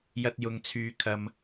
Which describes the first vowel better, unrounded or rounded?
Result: unrounded